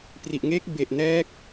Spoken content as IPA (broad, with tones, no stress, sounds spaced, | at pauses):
p r i˨˩ ʔ ŋ e˦˥ k̚ b e˨˩ ʔ n ɛː˦˥ k̚